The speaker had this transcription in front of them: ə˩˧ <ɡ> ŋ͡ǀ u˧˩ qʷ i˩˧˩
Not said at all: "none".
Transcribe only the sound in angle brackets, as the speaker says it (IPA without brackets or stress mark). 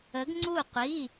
ɡ